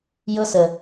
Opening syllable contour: high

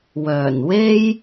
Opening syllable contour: low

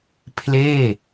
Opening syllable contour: falling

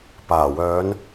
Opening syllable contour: low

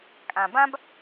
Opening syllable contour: low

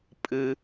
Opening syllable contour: low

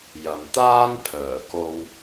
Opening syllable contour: low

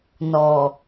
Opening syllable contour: low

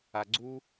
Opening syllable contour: low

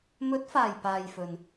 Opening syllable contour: rising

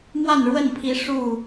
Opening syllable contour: falling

